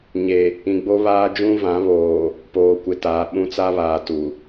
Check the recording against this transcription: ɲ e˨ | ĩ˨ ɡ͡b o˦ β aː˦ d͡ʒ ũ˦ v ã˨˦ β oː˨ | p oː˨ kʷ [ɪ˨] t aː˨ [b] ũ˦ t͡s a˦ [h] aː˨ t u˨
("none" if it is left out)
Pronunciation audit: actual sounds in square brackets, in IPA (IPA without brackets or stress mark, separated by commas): ɪ˨, ɓ, β